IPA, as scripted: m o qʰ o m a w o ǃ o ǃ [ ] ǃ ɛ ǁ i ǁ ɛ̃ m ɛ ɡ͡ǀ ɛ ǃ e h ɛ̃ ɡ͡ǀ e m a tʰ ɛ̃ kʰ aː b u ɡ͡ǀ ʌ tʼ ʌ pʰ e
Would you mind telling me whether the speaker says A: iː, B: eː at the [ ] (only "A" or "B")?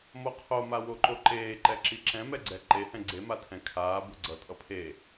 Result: B